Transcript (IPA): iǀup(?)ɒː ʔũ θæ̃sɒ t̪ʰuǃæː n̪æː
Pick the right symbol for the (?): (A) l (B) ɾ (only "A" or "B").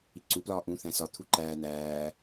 A